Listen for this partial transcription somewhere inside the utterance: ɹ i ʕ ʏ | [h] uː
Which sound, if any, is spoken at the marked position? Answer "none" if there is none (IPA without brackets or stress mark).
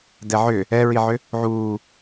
ʕ